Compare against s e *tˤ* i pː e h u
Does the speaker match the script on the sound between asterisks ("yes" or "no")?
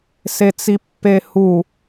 no